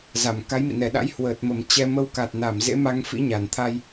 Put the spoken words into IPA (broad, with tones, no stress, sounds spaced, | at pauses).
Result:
z a˧˩ m k a˨˦ j m ḭ˧˨ n ɛ˧˩ ɗ a̰˧˥ j h w əː˨˩ t̚ m ə˨˩ m t͡ɕ ɛ˧ m ə˧ w k a˨˩ t̚ n a˧˩ m z ḛ˧˥ m a˧ ŋ f ḭ˧˥ ɲ a˧˩ n t̪ʰ a˧ j